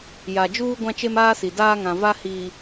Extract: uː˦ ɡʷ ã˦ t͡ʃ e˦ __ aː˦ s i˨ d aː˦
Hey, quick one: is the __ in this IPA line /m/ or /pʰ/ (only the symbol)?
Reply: m